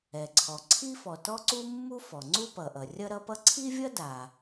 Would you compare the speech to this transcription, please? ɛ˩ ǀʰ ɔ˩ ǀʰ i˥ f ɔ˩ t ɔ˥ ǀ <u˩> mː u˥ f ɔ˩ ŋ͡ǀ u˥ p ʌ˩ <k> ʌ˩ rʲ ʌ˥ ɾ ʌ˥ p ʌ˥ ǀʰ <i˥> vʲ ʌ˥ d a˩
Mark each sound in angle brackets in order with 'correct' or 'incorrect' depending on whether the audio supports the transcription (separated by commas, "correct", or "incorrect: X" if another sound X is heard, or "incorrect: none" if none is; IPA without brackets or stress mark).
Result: incorrect: u˥, incorrect: ʔ, correct